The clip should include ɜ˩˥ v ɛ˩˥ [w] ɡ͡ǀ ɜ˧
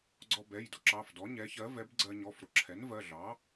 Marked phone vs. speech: incorrect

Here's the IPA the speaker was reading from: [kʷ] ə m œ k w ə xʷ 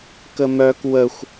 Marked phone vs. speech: incorrect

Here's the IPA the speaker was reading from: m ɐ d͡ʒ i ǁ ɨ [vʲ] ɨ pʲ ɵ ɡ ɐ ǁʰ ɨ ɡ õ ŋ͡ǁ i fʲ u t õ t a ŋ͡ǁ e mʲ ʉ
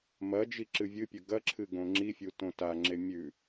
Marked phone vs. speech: correct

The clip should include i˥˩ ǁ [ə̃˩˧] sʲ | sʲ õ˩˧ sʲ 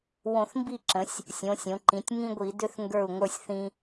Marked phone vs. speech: correct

